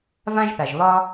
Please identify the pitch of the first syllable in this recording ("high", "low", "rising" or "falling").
high